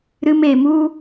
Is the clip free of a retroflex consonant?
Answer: yes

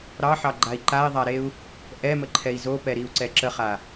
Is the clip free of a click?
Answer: no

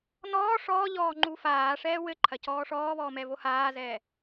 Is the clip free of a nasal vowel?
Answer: yes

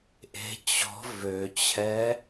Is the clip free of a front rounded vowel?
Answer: no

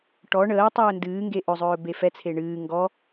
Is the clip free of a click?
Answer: yes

